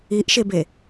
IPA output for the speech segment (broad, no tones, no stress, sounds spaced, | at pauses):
i ʔ ʃ e b e